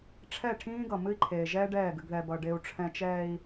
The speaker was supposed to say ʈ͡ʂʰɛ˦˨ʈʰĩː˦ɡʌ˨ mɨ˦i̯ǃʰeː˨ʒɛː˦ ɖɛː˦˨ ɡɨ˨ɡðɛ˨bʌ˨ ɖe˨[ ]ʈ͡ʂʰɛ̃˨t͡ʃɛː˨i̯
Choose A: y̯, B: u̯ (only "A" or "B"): B